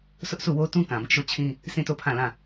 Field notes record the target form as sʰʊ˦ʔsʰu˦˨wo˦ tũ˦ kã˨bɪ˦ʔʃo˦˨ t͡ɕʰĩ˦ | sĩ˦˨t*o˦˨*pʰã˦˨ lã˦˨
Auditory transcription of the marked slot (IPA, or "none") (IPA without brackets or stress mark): o˦˨